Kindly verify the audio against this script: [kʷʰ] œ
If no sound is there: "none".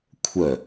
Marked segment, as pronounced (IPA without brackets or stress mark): kʷʰ